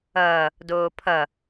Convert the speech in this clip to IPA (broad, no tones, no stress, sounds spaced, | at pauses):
ʌː | d oː pʰ ʌ